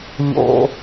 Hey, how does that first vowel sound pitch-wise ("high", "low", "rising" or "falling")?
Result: low